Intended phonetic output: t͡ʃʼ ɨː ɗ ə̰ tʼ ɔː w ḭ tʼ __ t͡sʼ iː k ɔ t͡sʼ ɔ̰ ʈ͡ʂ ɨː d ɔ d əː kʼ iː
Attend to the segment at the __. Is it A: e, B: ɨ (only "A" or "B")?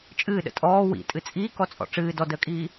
B